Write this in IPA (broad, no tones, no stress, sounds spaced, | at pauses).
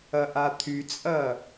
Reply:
ɐ ʔ a t̪ʰ y t͡sʼ ɐ